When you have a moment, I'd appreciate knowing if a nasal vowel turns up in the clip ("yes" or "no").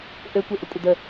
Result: no